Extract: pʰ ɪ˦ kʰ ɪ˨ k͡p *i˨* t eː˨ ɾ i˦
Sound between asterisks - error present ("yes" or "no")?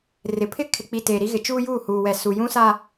no